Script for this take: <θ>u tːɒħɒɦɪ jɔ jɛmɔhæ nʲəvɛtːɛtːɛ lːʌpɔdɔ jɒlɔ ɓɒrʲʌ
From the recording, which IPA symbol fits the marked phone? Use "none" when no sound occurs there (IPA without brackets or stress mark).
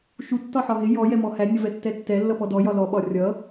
ʃ